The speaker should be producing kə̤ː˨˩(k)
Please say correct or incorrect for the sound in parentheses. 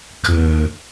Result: incorrect